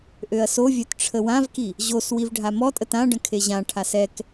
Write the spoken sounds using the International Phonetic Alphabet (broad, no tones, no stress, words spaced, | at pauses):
ʔøɐ̯sovʲœt ʈ͡ʂʰəwãvki | ʑos wivɖʱamɔtʼət ãɖə̃ kʰeʑãʈʰas ɛk